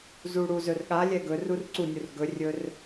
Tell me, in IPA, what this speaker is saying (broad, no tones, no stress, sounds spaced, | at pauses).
z u ɽ u z ɵ r ɠ a lʲ ɛ ɡ ɵ r u r ǀ u nʲ u r ɡ ɵ rʲ ɵ r